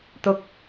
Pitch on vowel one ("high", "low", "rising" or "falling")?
low